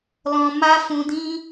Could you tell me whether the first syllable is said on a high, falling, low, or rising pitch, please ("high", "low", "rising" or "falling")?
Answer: high